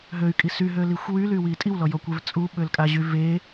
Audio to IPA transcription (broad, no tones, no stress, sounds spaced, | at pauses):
ɦ ø y̯ kʼ i s y ɦ ø l i xʷ w y l y w i tʼ i w l ɔ j ɔ kʷ e v t͡sʼ u ɓ ø l kʼ a ʑ y v e